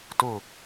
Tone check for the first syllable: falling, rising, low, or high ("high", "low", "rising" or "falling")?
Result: falling